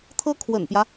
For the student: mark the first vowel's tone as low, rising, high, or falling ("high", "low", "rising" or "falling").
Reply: high